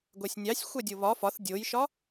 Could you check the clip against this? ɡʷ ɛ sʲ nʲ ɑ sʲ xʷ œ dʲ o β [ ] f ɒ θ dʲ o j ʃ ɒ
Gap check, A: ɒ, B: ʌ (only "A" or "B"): A